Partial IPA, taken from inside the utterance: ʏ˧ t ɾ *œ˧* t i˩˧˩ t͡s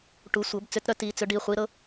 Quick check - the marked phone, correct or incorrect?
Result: correct